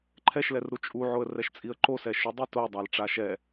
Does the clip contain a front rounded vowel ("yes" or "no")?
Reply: no